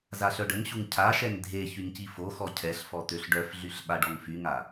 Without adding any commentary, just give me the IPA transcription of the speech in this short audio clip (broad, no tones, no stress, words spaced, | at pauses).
zaɬœɖəŋɕuŋ cʰaʃɛŋ dʱe çyŋcifoxɔ cʰɛɬ fɔt̪øɬɖœfɮyɬ ɓaɖɔŋfyŋa